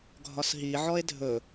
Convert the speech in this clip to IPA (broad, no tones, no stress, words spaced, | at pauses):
ɡʱɒsɦi ʕɔe̯dʱɵ